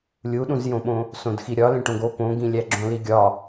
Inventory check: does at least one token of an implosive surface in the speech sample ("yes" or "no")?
yes